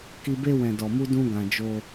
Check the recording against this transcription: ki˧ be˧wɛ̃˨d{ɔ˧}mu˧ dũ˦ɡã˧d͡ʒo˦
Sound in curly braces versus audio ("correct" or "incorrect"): incorrect